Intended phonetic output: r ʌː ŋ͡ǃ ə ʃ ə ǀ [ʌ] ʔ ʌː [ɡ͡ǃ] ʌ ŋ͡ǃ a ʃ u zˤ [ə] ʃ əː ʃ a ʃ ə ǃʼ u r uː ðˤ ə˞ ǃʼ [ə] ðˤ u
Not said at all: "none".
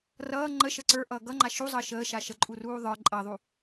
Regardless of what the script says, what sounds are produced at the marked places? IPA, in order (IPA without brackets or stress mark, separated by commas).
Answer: ə˞, ɡ, əː, ʌ